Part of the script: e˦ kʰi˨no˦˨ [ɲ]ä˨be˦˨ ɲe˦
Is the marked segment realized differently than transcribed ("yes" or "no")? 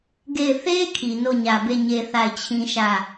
no